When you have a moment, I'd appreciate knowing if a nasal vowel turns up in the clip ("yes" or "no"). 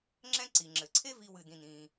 yes